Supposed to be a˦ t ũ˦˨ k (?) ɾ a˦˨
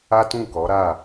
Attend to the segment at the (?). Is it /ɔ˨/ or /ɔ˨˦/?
ɔ˨˦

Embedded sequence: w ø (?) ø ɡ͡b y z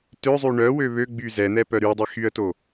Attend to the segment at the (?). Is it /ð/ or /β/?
β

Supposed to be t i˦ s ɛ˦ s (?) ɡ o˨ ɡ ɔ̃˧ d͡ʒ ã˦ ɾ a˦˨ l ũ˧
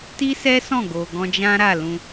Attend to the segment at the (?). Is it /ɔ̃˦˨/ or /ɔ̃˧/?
ɔ̃˦˨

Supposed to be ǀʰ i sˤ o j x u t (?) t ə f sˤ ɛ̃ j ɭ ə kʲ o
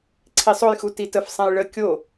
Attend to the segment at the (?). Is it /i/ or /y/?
i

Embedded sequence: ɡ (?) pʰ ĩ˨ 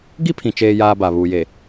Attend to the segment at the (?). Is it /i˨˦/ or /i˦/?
i˦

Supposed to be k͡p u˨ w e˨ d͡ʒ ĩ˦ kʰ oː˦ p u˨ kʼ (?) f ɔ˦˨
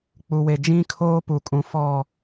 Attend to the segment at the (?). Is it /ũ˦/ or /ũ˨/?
ũ˨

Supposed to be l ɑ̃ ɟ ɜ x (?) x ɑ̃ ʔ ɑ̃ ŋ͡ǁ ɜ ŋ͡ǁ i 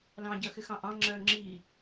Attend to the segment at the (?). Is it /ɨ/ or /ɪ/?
ɪ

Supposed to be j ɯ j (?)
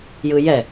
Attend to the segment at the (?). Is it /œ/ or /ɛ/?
ɛ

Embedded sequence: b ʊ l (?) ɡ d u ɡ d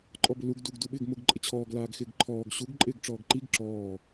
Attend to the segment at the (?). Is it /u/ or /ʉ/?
u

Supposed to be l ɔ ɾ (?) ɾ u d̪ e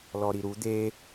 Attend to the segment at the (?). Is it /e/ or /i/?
i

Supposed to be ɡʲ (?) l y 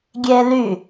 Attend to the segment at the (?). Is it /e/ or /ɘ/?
e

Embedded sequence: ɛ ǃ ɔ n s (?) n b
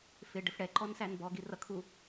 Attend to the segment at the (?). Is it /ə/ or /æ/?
æ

